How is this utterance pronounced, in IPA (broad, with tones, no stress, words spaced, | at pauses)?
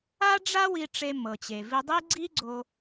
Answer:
a˥ɖ͡ʐa˥wi˧ ʈ͡ʂe˧mɤ˩t͡ɕe˩ vi˧dˤi˥ ɡ͡ǀi˥ɡ͡ǀo˧